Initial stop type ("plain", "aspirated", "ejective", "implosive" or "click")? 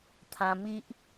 aspirated